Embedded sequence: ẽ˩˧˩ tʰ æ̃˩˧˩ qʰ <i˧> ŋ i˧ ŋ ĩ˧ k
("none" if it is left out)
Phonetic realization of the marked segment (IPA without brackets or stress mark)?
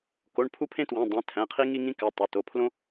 i˧